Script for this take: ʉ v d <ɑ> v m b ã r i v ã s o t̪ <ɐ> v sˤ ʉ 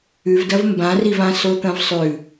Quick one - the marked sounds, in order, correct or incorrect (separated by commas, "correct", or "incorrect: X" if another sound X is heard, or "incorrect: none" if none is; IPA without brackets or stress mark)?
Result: incorrect: ɐ, incorrect: ɐ̃